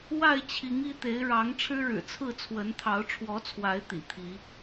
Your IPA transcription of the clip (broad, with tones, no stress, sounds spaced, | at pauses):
w a˥˨ ɪ̯ t͡ɕʰ i˨˦ ŋ i˥˨ t̪ e˨˦ ɪ̯ ɻ ɑ˨˦ ŋ ʈ͡ʂʰ ɻ̩˦ ɻ ɻ̩˨˩ t͡sʰ ɹ̩˥˨ t͡sʰ w ə˨˦ n t̪ʰ ɑ˨˦ ʊ̯ ʈ͡ʂʰ w ɔ˨˦ t͡sʰ w a˨˦ ɪ̯ t̪ ḭ˨˩ t̪ʰ i˨˦